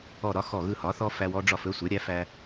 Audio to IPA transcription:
ɔ˦˨ ɾ ɒ˦ x ɔ˦˨ ɣ ɯ˦˨ h ɒ˩˥ θ ɔ˦ f æ˦ w ɔ˦ ɖ͡ʐ ɒ˦˨ f ɵ˦ sʷ ɛ˩˥ ɾʲ æ˩˥ f æ˦

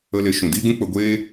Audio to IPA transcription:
ə˧ l e˨˦ ʃ ũ˨ d iː˦ ɡ ũ˦ k͡p ə˧ ɡʷ eː˦

